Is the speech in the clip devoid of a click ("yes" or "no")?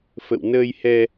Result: yes